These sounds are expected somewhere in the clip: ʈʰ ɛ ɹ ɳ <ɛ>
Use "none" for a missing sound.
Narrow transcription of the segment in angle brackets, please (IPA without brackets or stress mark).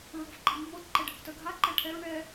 ɛ